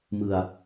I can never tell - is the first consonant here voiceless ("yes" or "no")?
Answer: no